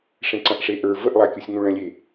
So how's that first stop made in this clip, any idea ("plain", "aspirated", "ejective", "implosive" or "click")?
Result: click